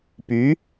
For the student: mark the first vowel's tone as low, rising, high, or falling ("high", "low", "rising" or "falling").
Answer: rising